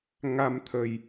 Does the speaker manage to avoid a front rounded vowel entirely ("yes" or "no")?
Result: yes